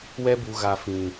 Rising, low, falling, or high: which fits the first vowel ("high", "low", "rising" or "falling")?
high